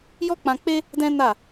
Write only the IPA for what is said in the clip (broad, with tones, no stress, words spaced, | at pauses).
jɔ˦k͡pã˧k͡pe˦ | dɛ̃˦na˦˨